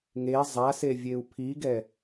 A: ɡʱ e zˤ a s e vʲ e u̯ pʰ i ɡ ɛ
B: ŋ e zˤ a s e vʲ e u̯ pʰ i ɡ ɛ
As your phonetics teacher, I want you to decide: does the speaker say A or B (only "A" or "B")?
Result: B